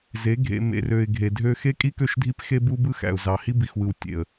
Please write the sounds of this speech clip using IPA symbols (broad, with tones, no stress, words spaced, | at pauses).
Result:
ze˨˦ ɡʱḛ˨ mḛ˨rø˨ɪ̯ ɡʱe˨dʱø˦ xe˦kʼi˦kø˦˨ʃdʱi˦p xe˦bu˦ bɯ˦xæ̰˨ʊ̯zɑ˨ hi˦bi˨xwɯ˨w tʲḛ˨ə̯